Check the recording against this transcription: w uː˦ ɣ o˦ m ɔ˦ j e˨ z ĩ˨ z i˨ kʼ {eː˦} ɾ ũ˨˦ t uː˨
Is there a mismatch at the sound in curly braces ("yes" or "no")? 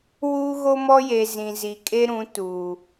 yes